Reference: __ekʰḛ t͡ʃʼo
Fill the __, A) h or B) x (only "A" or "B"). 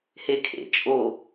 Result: A